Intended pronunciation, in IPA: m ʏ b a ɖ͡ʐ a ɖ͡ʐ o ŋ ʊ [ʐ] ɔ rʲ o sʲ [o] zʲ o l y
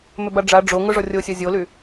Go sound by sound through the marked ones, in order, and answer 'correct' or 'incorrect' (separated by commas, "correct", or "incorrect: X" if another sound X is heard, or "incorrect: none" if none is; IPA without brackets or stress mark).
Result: correct, incorrect: ɔ